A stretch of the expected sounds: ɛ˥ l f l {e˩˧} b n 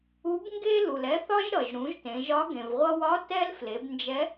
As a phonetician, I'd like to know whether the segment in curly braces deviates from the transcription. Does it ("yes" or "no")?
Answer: no